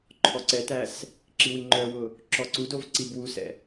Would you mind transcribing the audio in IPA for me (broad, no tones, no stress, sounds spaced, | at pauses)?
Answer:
ǃʰ ɔ ǀ ɛ t æ s | ǁ i w i ŋ͡ǃ œ w ʊ | ǁ ɔ ǀ u d o v ǀ i b w u s ɛ̰